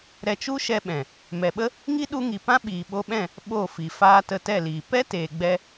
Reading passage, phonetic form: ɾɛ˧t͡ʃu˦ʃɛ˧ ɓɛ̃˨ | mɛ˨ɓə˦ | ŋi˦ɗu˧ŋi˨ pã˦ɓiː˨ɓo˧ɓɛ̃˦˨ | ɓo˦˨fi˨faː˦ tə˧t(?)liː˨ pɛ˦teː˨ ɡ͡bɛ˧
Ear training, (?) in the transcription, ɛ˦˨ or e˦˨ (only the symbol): ɛ˦˨